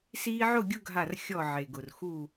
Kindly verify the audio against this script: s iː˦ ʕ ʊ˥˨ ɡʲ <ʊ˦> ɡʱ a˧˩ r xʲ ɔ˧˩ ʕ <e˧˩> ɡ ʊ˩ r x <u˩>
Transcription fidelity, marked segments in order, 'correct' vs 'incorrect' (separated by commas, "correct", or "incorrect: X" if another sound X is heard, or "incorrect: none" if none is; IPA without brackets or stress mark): correct, incorrect: e˩, incorrect: u˧˩